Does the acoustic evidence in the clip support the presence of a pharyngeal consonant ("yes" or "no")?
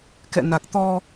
no